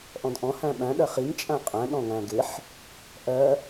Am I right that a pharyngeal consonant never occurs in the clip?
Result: no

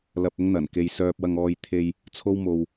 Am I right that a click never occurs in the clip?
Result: yes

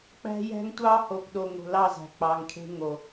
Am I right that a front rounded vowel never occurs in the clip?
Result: yes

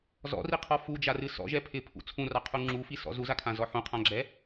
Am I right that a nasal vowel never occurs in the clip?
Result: no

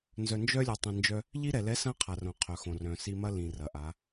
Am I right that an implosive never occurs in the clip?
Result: yes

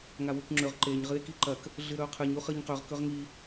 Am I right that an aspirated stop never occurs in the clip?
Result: no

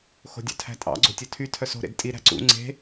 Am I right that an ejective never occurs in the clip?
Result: no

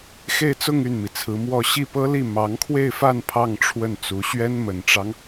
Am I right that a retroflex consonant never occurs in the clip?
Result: no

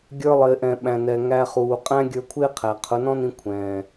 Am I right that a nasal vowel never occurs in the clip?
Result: no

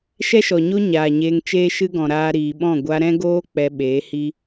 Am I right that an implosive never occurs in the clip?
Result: no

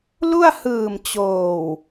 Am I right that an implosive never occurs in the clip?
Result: yes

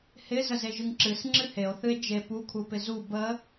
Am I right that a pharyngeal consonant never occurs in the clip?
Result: yes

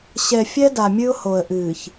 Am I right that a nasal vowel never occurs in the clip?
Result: yes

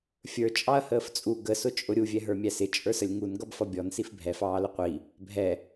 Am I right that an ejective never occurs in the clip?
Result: no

